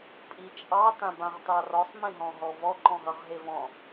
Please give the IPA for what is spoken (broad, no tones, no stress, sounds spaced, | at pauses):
pʼ i t͡ʃʼ ɑ t ã b ã ʁ t ɑ r ɔ sˤ m ẽ ɦ ɔ̃ ɦ ɔ v ɔ ǃ ɔ̃ ɦ ʌ ʁ ɦ e v ɔ̃